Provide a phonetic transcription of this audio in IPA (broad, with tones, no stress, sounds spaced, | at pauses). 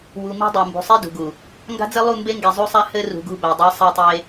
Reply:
w u˨ m i̤˦ dˤ a˨ m b ṳ˨ sˤ i˦ d ṳ˨ ɡ u˨ | ŋ ɡ a̤˦ d͡z ɘ˦ lˠ u˦˨ m b e˦ ŋ ɡ e˨ zˤ u˦ sˤ a˦ h ɘ˦ r ṳ˨ ɡ ṳ˦˨ b æ˨ dˤ i˨˦ sˤ æ˦ tˤ e˦